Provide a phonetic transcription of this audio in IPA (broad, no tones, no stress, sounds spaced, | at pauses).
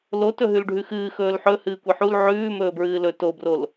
l o t ɵ ɦ ʉ l ɖʱ ʉ x ɨː x ɵː l ħ ɵ h ɨː kʷ i ħ u l ʕ ʉː m ɵː b ɹ ɨː l ɵ t o b r o l